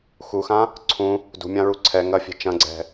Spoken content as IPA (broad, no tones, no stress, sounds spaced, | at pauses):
x u x ã | ǀʰ ũ | d ṳ mʲ ã ɹ u ǀʰ ɛ ŋ ɐ fʲ ɛ̤ t͡ʃ ɐ̃ ɡ͡ǀ ɛ̤